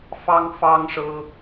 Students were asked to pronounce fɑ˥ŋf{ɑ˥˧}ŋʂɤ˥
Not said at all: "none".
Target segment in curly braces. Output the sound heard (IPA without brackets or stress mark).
ɑ˥